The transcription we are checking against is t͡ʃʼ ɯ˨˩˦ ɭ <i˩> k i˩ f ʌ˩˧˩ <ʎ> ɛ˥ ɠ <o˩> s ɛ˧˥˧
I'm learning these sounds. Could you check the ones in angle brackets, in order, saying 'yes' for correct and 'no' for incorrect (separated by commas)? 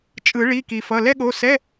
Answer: no, no, no